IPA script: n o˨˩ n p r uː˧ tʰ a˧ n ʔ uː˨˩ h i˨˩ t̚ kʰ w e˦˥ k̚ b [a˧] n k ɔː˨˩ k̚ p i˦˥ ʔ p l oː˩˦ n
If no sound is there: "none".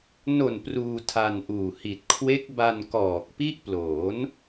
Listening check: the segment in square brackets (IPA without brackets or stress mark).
a˧